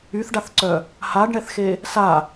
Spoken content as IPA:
yθɖaθǀœ | haɖɳɛθxe | sa

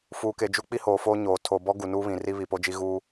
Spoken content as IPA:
fuː˨ke˨ d͡ʒu˦ k͡pi˦hoː˨foː˦ ɲoː˨ tʰoː˨bɔ˦ ɡu˨nuː˦βĩ˨ ri˦βi˨po˦d͡ʒi˦ ɣuː˦

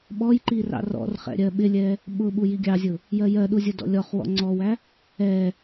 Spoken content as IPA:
ɓɔjǃi rɑ̰rɔ̰rχɛ̰ ɾʲɜɓɪlʲɛ | ɓʊɓu jiɡʲɑzʲʊ | jɜjɜɗu zʲədɔ̰lʲɔχwɔ̰ ŋ͡ǀɔwæ | ɛ

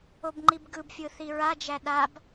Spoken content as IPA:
obŋ͡ǃibɡɯbfʲɯ θiɹad͡ʒæ ɗab

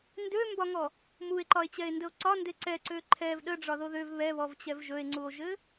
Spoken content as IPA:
ndømbɒŋɔ | mue̯ǃɒe̯t͡ɕɛe̯ndəo̯ ǀɒnde ǀɛǀø ǃʰɛv ɗəɖ͡ʐɒðo ðøv βɛβɔvt͡ɕɛv ʒɵe̯ŋ͡ǀuo̯ʒɘ

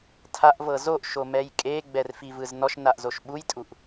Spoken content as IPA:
tʰaʔvɤ zoʔʃomɛj kʼeɡ͡bɛrfivɯz nɔʃnaʔzoʃ ɓujtʼuʔ

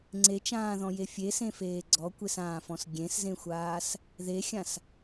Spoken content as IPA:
ŋ͡ǀet͡ʃãːðɔ̃je fʲesẽfeː ɡ͡ǀɔkʷesãːfɔ̃s ɡʲẽszẽxʷaːs | ðexʲãs

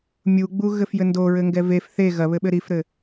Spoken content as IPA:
mʲuɡ͡buɣɘf jɘndo ɹɘŋɡɛvef θe ɣɐβɘ ɓɘɾifɾɘ

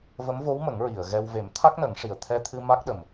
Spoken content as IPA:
və˧˥mvo˧˥wmə˨˩˦ŋ ɹi˨˩˨ə̯ɣɛ˧w ve˨˩˦mt̪ʰa˦˥k̚nə˨˩˦ŋʂi˨˩ə̯ t̪ʰɛ˧t̪ʰɨ˧ ma˦˥k̚ɗə˨˩m

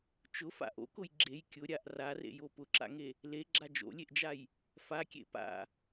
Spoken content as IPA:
t͡ʃʊfa̰ ʔo̰kʊj ɡ͡ǁej kʲʊɾʲaʔ rarḛjo pʊǁa̰ŋe | leɡ͡ǁa d͡ʒo̰lʲeʔd͡ʒaj | fakʲḛ pa̰

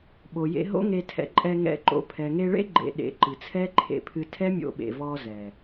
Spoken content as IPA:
ɓo˨jḛ˧ ɦo̰˦ŋe˧tʰɛ̰˧ ǃʼɛ˧ŋɛ̰˧ǃo̰˧ pʰɛ˨ŋe˧ɭḛ˦ ɡ͡ǃḛ˧ ɗḛ˨ ǃɨ˨t͡sʰɛ˦ǃʰḛ˧pʰɨ˧ tʰɛ˦mʲo̰˧ɓḛ˨ vɔ˧ zɛ˨

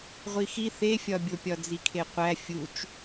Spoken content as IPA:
ʁʷixi θefʲɒbʲopʲɒ d͡zikʰeqʷæ fʲut͡ʃ

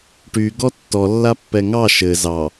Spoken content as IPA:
ʈy ɡɔtːɔlːa pːɛŋɑ ʃɘ zɑ

